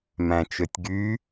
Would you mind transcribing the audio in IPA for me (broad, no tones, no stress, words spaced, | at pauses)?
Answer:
mæ̃t͡ʃøtʲɡy